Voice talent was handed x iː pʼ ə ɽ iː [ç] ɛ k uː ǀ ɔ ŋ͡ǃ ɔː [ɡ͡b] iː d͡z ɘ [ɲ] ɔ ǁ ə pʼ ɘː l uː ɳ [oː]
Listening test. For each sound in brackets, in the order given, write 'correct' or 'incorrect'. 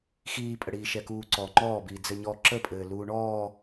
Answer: incorrect: ʃ, incorrect: b, correct, incorrect: ɔː

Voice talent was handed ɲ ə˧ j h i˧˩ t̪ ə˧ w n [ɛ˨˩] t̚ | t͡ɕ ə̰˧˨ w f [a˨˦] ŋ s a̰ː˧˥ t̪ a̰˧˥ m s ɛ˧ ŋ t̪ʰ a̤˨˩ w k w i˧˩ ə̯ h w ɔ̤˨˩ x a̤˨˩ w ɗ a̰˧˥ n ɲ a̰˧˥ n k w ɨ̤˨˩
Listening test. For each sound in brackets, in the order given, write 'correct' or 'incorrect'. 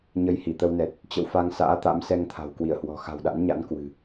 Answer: correct, incorrect: a˧

